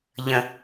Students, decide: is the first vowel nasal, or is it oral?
nasal